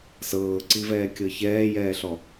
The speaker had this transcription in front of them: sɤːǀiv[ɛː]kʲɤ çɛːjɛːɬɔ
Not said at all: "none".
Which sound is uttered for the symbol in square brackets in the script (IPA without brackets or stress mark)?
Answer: ɛː